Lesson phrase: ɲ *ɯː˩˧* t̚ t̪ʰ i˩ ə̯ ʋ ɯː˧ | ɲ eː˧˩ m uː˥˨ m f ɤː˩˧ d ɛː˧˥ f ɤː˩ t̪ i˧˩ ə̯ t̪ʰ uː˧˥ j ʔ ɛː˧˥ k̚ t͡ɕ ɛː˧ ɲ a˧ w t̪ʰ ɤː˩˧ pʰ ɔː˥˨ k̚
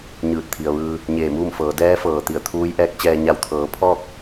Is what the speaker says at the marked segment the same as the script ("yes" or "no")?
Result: no